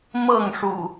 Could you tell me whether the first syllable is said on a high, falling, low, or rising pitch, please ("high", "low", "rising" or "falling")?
falling